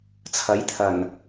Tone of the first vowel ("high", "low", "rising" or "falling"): rising